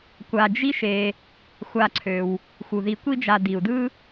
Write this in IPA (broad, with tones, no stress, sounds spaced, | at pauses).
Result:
kʷ a˨ d͡ʒ i˦ ʃ e˨ | xʷ a˨ ǀʰ ø˩ w | x u˩ ð i˨ kʷ i˦ d͡ʒ a˨ d i˩ u̯ d ɯ˥